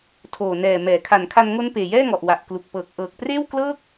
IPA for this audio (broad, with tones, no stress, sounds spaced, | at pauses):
tʰ oː˨˩ n ɛː˨˩ m ɛː˩˦ kʰ a˨˩ n kʰ a˧ n ŋ o˦˥ n p eː˨˩ j ɛː˥˩ ŋ ɔ˨˩ ʔ w a˨˩ ʔ k l u˨˩ k̚ p ɤː˨˩ k̚ ʔ ɤː˨˩ k̚ p r eː˥˩ w k l ɤː˥˩ k̚